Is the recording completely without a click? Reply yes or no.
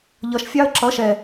no